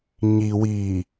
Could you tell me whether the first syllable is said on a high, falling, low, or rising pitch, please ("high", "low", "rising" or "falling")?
low